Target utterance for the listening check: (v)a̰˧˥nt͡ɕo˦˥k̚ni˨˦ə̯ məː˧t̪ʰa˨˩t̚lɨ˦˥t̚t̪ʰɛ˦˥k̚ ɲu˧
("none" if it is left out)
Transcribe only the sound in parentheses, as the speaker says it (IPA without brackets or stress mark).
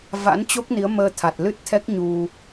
v